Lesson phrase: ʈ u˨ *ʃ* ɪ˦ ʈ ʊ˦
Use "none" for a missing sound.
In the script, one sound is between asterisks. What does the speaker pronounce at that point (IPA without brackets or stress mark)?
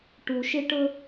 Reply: ʃ